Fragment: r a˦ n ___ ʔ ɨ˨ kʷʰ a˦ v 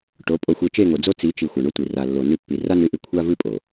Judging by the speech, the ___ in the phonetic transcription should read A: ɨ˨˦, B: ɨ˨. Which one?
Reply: A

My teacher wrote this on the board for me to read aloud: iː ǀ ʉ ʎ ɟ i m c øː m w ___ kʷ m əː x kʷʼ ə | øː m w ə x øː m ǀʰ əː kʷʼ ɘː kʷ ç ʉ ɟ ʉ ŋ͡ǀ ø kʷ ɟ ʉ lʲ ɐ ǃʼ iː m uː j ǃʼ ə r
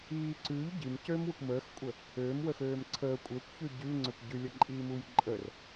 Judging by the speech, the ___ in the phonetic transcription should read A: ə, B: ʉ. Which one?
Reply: A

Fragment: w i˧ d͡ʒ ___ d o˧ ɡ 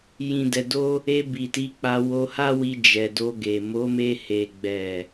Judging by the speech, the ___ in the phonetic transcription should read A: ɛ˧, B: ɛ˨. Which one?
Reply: B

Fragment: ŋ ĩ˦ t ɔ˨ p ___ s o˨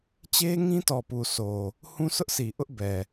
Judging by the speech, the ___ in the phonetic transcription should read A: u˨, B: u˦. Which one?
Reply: A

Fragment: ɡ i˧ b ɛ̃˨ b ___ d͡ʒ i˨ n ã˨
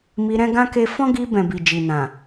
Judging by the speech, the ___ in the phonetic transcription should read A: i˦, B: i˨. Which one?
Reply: B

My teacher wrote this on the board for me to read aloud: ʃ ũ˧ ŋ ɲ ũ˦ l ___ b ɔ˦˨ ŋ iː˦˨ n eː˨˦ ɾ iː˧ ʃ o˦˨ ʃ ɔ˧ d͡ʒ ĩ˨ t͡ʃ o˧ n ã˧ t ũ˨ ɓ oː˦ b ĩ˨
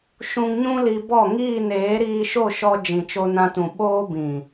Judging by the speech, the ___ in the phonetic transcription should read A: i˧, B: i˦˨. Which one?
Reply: A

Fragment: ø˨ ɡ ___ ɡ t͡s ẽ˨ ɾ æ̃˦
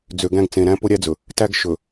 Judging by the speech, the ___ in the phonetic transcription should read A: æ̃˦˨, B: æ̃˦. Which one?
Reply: B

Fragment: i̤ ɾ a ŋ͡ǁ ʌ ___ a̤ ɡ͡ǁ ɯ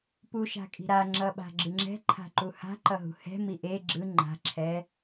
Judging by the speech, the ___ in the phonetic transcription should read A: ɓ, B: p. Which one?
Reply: A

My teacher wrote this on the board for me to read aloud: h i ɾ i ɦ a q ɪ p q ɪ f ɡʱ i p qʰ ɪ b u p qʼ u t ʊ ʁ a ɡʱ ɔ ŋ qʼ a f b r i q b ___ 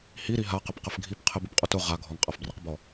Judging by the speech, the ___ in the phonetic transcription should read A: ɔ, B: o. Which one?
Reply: A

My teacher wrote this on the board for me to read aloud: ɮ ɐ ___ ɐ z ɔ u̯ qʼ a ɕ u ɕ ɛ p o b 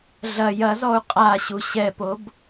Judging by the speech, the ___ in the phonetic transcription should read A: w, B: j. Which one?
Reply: B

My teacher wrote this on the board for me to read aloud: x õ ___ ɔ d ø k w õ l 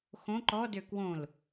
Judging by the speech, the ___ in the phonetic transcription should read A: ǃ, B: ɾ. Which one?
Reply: A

